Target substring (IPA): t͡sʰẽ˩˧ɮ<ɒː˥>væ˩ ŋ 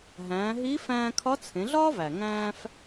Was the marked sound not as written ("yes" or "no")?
no